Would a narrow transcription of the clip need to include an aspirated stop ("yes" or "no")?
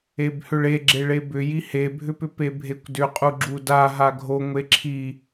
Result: yes